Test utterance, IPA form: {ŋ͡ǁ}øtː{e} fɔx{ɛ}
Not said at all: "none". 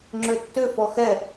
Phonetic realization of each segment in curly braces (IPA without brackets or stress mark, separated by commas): ŋ͡ǁ, ø, ɛ